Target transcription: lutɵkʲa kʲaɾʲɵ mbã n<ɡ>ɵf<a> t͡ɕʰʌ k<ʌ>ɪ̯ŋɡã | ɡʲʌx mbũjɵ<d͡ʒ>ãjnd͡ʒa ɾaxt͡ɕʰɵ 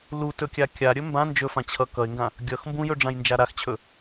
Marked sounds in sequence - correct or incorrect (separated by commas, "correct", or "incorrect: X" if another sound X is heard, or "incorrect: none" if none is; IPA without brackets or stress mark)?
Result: incorrect: d͡ʒ, incorrect: ã, correct, incorrect: ɖ͡ʐ